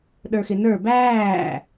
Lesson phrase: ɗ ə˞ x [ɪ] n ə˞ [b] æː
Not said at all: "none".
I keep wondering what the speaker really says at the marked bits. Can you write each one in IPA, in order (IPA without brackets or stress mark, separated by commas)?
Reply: ɪ, b